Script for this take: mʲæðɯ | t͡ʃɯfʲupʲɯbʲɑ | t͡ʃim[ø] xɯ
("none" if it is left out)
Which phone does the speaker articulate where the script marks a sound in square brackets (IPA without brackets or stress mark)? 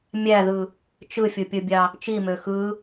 ø